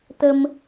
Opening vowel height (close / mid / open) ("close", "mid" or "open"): mid